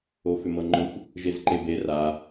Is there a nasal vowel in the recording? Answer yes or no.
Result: no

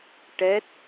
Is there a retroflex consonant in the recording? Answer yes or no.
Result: yes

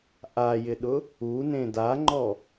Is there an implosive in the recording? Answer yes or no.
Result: yes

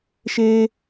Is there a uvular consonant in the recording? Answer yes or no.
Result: no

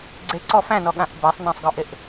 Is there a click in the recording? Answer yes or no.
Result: yes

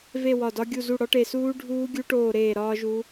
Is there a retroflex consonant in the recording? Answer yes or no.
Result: yes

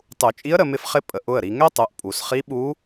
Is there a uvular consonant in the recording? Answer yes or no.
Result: yes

